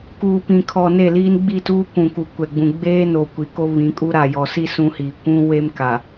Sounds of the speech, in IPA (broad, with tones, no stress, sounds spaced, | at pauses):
k uː˨ p ĩ˨ kʰ ɔ˨ n e˦˨ l iː˦ n ɡ͡b i˦˨ t uː˦ kʷ ũ˨ k u˨ kʷ ɛ˨ ɡ͡b ũ˨ ɡ͡b eː˦ n o˨ kʷ i˨ k o˦ β ĩ˨˦ kʼ u˦ ɾ a˨ j ɔ˨ s i˦ s ũ˦ h iː˨ kʷ ũ˦ w e˦ m k a˨